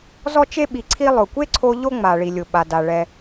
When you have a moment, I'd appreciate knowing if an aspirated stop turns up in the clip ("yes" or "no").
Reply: yes